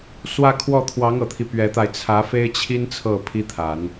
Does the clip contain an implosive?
no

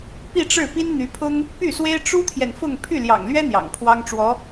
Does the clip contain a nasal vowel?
no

